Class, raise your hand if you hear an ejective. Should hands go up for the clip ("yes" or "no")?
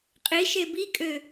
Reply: yes